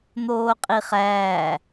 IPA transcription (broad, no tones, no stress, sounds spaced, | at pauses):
n̪ oː qʼ i χ æː